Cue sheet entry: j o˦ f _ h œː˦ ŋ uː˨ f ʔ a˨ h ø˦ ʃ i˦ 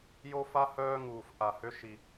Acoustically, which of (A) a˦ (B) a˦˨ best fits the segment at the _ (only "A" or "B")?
A